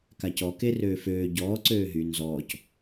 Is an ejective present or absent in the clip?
absent